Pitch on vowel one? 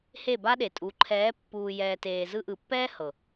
falling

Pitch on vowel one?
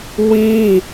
high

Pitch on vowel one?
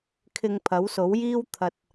low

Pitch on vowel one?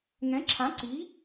rising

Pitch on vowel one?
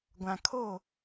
low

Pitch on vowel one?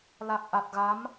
low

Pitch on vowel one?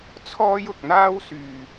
high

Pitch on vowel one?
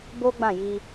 high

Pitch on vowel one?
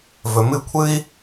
low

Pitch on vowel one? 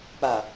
low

